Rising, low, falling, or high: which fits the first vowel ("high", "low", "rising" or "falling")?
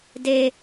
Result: high